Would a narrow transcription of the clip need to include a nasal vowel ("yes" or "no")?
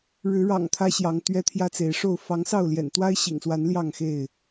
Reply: no